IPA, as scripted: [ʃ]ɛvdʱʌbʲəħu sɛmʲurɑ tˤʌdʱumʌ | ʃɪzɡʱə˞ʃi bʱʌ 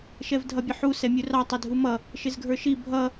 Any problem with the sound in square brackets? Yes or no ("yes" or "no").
no